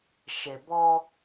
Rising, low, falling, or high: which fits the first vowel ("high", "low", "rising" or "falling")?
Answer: low